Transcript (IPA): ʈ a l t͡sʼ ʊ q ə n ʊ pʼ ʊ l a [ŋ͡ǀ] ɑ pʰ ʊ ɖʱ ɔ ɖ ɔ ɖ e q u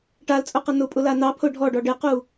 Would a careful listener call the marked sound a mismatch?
yes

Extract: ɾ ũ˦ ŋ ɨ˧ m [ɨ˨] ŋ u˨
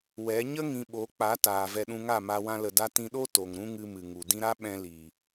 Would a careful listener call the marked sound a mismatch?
no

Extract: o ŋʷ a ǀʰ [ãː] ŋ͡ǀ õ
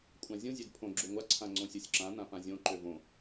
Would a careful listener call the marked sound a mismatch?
yes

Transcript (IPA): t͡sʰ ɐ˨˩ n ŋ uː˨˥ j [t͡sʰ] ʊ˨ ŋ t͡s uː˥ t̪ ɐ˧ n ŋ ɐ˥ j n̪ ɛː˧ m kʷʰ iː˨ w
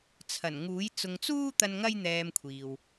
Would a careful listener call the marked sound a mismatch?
yes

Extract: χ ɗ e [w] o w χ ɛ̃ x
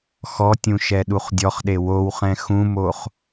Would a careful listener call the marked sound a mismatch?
no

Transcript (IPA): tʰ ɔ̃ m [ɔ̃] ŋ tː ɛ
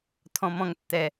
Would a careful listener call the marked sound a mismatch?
no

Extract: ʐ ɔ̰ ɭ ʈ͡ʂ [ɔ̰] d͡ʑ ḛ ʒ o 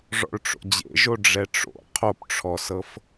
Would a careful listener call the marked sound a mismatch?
yes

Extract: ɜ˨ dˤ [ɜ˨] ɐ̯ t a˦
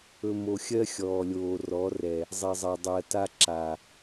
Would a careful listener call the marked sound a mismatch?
yes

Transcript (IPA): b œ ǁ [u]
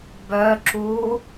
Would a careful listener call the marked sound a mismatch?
no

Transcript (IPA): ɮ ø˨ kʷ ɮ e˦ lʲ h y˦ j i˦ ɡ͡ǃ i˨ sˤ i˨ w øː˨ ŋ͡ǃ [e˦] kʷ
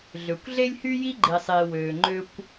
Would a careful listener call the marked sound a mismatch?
yes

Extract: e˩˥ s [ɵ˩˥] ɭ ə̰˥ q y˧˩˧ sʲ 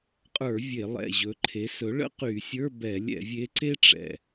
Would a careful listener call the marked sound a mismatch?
no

